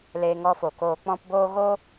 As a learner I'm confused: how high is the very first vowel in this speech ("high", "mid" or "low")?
mid